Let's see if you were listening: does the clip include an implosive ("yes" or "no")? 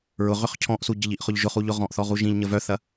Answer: no